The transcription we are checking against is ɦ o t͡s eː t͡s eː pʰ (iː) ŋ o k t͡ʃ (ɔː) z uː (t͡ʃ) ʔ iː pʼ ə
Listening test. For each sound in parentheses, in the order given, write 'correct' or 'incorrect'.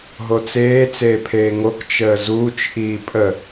incorrect: eː, incorrect: əː, correct

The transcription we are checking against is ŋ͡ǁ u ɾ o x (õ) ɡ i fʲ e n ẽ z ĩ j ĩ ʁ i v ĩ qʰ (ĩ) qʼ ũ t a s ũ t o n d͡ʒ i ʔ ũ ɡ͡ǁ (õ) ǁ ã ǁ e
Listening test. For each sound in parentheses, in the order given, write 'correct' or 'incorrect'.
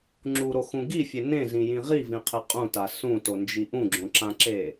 incorrect: ũ, incorrect: i, correct

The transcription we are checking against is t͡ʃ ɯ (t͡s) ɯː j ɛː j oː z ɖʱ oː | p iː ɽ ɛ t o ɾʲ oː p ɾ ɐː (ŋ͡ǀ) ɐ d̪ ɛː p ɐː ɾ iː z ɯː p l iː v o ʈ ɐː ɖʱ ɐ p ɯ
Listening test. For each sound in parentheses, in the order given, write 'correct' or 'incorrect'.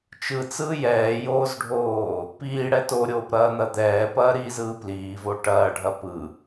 correct, incorrect: n̪

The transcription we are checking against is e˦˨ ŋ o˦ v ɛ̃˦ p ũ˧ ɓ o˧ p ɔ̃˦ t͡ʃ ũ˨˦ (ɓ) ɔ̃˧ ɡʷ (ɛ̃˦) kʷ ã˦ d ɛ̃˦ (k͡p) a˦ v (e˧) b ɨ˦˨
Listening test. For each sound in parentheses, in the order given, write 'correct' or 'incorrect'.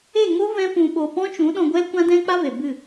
incorrect: ɗ, incorrect: ɛ˦, correct, incorrect: e˨

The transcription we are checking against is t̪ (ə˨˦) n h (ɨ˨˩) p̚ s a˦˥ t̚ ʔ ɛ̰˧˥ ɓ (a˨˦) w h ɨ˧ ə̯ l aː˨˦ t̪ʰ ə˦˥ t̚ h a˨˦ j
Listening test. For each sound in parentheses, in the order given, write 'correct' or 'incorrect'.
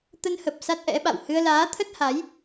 incorrect: ə˧, incorrect: ə˨˩, incorrect: a̰˧˨

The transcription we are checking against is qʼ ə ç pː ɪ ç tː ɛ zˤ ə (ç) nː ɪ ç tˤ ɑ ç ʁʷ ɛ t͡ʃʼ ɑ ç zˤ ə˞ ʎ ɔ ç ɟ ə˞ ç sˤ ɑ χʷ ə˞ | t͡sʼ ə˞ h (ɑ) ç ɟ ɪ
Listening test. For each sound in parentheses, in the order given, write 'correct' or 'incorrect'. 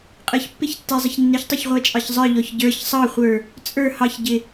correct, correct

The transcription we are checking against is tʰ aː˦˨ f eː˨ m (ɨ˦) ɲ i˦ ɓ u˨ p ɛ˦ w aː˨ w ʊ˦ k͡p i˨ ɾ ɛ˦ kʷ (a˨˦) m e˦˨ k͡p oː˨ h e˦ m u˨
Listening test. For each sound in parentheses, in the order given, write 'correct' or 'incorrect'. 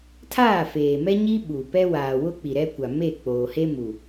incorrect: ɛ˦, incorrect: a˨

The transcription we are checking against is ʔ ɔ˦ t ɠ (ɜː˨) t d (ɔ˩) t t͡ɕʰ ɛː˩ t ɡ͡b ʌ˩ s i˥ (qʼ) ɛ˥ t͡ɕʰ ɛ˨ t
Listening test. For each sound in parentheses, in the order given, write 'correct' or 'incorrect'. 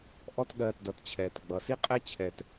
correct, incorrect: ʌ˩, correct

